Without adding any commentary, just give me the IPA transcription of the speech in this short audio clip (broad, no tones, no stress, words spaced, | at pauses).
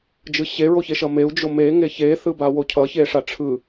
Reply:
d͡ʒɯɕe ɹoçeʃʌmeu̯ d͡ʒome ŋeçe θɯbawocʰʌ çeʂaʈ͡ʂʰɯ